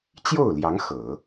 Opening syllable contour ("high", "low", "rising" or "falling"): falling